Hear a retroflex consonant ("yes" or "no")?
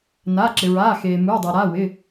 no